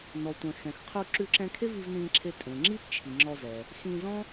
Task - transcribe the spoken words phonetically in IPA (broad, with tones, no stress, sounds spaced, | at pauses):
n ɔ˩ tʷ ɛ̃˩ x ɛ̃˩ x qʰ u˧ ǁ ʉ˧ ǁ ɛ̃˧ kʰ e˥ v i˧ v n ĩː˧ ǁʰ e˧ tʼ ẽ˩ ŋ͡ǁ i˥ p t͡ʃʰ i˩ ŋ͡ǁ ɔ˧ z ɛ˩ | x ĩː˧ z ɔ̃˥